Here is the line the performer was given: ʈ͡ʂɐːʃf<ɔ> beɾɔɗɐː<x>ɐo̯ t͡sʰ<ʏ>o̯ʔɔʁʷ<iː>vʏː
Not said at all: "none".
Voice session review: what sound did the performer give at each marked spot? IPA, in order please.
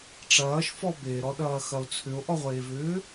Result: ɔ, x, ʏ, eː

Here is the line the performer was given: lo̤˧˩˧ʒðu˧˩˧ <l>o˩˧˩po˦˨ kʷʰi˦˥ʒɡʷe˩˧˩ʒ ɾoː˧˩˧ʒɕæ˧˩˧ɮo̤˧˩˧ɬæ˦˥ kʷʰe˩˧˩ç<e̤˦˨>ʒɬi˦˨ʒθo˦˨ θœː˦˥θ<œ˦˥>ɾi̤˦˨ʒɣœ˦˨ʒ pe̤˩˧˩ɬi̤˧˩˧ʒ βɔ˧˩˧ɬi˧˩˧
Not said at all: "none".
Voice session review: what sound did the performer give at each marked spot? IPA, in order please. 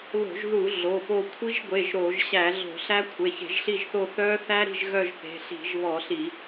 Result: ɮ, e̤˧˩˧, æ˦˥

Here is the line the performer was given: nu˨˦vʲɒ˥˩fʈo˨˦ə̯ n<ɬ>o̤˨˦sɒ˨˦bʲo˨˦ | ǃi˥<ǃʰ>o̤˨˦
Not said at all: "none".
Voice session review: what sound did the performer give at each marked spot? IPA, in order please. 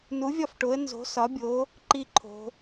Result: z, ǃʰ

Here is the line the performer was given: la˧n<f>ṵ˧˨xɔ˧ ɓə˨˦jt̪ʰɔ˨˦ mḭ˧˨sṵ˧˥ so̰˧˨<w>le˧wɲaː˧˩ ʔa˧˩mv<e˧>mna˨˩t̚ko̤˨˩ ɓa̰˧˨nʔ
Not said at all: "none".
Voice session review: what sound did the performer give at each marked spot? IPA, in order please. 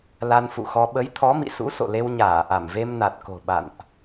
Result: f, none, e˧

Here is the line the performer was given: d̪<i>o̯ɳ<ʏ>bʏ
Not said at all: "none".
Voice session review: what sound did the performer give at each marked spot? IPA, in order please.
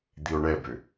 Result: i, ɛ

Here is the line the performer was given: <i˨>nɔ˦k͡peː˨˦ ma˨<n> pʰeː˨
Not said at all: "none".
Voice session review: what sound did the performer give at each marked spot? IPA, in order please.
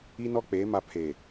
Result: i˦, none

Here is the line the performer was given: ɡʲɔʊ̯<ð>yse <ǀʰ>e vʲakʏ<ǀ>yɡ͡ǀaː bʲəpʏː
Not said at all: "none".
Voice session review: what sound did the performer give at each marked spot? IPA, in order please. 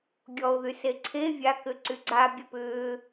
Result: ð, ǀʰ, ǀ

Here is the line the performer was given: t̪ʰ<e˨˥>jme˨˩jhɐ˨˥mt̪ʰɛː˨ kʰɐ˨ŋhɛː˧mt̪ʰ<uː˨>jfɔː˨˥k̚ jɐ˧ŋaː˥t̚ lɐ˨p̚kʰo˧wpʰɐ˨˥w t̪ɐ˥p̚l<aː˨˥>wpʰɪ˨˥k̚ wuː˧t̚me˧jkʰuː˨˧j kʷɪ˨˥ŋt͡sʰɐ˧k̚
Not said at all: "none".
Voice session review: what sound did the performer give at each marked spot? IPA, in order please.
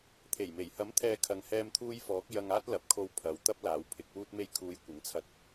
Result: e˨˩, uː˧, aː˨˥

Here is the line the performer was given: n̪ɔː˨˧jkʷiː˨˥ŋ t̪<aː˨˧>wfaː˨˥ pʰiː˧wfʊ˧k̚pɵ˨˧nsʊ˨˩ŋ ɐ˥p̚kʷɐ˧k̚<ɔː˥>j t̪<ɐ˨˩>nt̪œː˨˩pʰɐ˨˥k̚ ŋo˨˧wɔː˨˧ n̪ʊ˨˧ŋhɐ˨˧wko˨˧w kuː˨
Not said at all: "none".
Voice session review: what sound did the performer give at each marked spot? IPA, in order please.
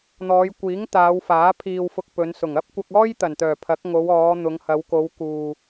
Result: aː˨˧, ɔː˥, ɐ˨˩

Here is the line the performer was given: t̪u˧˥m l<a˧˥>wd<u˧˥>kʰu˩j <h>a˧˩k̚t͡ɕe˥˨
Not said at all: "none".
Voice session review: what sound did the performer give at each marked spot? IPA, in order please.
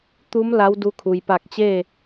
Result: a˧˥, u˧˥, p

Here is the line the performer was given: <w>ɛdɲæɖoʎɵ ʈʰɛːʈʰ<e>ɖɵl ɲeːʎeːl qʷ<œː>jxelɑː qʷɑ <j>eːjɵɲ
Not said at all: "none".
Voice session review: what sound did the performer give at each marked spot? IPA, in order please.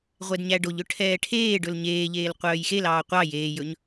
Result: ʁʷ, eː, œː, j

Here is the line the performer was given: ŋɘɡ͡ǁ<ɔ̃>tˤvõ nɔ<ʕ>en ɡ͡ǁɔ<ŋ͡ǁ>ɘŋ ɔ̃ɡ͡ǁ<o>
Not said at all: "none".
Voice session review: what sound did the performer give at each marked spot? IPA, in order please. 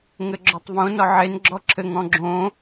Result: ɔ, ʕ, ǁʰ, õ

